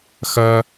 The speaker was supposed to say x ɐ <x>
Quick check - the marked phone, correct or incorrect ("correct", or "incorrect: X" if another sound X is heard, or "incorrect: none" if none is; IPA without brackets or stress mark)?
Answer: incorrect: none